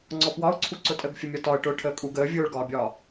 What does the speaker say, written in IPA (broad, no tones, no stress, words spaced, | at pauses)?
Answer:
ŋ͡ǀɔpwɒʊ̯ǀʰu ǀʊtʼəɡ fʲəmʲɒtɒə̯ ʈʊːʈʰəːkʼuɡ əː vʲʊːɭɡɒːbʲɒː